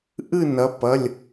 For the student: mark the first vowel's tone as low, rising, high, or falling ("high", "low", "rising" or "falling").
falling